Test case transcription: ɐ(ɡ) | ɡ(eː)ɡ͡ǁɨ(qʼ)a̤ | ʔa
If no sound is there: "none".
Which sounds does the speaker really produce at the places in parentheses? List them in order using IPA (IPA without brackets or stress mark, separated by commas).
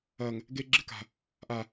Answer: ŋ, e, k